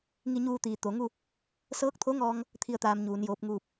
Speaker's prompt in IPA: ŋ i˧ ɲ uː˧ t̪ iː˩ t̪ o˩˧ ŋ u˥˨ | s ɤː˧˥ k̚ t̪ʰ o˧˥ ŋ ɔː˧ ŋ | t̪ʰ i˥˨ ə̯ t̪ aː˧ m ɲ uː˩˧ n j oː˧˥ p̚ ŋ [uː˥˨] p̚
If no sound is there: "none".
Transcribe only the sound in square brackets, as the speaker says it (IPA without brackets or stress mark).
uː˥˨